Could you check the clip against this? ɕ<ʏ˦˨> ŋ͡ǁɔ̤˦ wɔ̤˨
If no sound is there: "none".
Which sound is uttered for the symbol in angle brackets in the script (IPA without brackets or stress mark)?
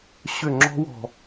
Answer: ʏ˦˨